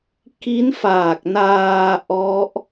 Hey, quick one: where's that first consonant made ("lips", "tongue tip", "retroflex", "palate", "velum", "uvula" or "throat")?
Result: velum